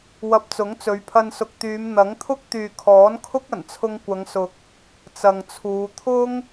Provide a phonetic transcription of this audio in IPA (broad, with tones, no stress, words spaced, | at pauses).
wɐ˧p̚t͡sʊ˨˥ŋt͡sɵ˨˧ɥpʰɐ˧n sʊ˨k̚t̪yː˨˧m n̪ɐ˨˥ŋt̪ʰʊ˥k̚ t̪yː˨kʰɔː˨˥nkʰʊ˥k̚ ɐ˨˩nt͡sʰʊ˧ŋkʷɐ˨˧ŋsʊ˨k̚ | t͡sɐ˨ŋt͡sʰuː˨˧ t̪ʰʊ˥ŋ